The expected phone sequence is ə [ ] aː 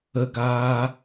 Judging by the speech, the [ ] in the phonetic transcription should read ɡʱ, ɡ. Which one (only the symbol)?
ɡ